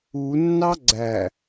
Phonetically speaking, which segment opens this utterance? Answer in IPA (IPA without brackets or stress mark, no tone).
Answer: u